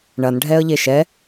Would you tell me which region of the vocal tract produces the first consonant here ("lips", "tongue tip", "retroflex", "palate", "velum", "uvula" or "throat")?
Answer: retroflex